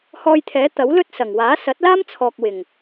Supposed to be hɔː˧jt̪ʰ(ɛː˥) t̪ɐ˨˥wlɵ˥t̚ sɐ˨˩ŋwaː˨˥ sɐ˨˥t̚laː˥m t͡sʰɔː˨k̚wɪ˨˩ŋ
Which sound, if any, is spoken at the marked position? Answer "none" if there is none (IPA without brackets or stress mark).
ɛː˨˥